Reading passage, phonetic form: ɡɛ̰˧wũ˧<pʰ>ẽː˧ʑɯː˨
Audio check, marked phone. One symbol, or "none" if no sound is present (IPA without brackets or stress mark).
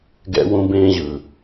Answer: b